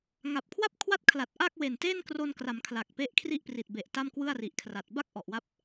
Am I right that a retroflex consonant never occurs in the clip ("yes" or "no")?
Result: yes